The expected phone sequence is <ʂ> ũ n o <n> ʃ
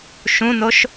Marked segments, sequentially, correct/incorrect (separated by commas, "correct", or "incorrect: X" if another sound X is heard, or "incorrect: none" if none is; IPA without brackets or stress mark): incorrect: ʃ, incorrect: none